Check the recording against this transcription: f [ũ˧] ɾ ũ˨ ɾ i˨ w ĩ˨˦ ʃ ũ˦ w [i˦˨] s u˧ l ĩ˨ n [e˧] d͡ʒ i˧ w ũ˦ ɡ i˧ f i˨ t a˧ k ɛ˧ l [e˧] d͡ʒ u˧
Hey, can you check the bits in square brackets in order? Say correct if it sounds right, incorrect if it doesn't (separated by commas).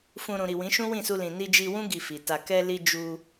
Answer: correct, incorrect, incorrect, incorrect